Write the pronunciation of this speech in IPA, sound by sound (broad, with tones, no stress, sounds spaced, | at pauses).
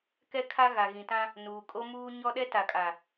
k ɛ˦ kʰ a˦ ɣ a˨ ɣ ĩ˨ t ã˦ | n uː˨ kʼ o˦ m uː˦ ɲ ɔ˦ ɗ ɛ˦ t a˨ kʼ a˨